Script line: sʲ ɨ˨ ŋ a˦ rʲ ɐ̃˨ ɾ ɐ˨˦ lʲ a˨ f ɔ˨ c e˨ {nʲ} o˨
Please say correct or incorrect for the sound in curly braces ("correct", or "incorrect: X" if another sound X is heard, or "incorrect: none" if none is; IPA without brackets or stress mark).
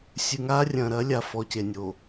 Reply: correct